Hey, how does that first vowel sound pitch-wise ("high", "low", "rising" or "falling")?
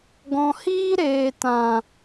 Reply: low